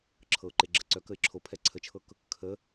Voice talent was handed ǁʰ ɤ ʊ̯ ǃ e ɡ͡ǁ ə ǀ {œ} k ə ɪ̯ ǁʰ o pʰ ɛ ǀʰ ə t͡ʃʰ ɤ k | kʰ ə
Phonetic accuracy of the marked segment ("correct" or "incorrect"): correct